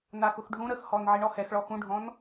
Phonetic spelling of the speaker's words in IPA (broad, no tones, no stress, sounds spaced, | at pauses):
n a x ʊ x ɖʱ ũ ɾ ə x h ɔ n ʕ i ɳ ɔ h ɛ x ɭ ɔ x ũ ɖʱ ɔ̃ n